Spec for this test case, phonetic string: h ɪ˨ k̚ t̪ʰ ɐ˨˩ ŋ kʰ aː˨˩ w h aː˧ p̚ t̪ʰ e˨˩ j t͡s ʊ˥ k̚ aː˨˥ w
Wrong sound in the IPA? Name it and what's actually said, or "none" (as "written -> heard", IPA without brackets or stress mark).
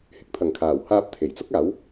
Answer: none